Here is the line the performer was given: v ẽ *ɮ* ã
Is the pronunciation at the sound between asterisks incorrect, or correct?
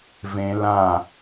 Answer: incorrect